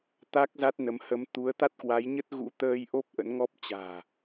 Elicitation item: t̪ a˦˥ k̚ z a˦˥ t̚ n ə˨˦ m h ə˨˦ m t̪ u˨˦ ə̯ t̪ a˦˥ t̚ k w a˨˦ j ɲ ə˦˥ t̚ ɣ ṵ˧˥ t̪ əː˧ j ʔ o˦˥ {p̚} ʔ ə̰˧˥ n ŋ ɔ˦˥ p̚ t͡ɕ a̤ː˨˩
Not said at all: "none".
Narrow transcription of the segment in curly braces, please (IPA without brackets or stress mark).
p̚